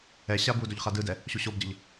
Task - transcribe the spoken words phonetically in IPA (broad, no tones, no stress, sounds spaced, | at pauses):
ɛ ɕ a b u d o ʎ χ a d ɯ d ɛ | ɕ u ɕ o b ɟ ʌ ʎ